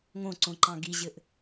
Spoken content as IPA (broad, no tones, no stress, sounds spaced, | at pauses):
ŋ õ ǀ õ ǃ ɑ̃ ɡ i ʑ ɘ ʔ